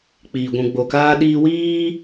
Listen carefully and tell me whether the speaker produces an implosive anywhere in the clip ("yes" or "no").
yes